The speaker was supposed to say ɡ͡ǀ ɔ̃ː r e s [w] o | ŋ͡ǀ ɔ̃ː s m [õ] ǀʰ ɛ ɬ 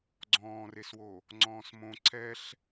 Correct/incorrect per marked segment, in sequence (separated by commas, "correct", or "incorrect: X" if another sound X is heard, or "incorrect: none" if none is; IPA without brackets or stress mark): correct, correct